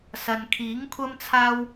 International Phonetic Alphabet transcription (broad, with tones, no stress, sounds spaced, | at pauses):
s ɐ˨ n kʰ iː˨˥ ŋ kʷʰ ɐ˥ m t͡sʰ aː˥ w